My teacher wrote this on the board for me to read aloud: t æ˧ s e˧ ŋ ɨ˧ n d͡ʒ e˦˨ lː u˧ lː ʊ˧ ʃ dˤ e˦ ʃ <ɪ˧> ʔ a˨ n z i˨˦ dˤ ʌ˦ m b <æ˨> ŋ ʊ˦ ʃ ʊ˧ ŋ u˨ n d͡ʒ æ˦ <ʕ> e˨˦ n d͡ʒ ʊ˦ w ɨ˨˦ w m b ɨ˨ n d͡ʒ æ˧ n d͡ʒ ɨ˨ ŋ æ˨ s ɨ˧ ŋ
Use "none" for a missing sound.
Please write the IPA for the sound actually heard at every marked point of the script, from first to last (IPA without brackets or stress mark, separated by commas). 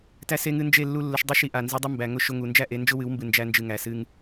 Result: i˧, æ˨, ʔ